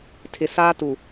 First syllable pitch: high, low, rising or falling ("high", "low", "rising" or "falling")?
low